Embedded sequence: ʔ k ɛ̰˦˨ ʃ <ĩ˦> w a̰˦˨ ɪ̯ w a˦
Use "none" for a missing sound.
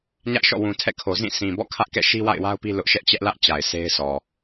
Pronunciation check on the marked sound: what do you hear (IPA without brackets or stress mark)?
i˦